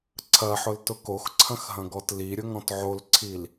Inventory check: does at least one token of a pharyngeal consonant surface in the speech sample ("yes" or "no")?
yes